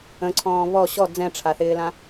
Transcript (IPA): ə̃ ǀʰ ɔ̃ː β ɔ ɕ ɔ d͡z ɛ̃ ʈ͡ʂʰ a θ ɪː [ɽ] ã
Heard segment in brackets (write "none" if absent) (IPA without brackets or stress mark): l